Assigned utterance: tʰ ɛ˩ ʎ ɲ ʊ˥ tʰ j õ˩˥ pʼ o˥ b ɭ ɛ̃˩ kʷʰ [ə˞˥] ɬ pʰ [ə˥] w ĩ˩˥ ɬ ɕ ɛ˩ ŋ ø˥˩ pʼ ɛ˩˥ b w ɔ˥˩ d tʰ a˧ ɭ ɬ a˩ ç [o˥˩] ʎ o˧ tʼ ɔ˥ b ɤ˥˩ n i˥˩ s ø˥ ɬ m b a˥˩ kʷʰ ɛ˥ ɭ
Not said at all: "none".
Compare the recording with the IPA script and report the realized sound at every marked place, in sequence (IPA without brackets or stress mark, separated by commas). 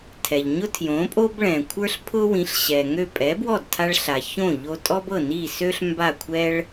ə˞˥, ʊ˥, õ˥˩